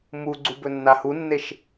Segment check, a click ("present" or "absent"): present